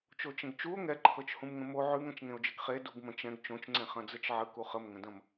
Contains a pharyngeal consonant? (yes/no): yes